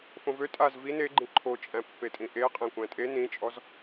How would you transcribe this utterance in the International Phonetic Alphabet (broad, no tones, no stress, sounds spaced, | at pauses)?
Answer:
f õ v ø tʼ a z v i n e ɡ͡ǃ ĩ ǃʰ o t͡ʃʼ æ̃ pː e tʼ ĩ ʔ e qʼ ẽ kʷ æ̃ tʼ e n ĩ t͡ʃʼ ɔ z